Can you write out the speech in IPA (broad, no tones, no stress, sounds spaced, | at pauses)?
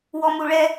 w ɔ m u ɭ ɛ